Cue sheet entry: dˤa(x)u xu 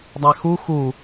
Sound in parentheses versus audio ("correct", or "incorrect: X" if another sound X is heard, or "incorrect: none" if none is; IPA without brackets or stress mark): correct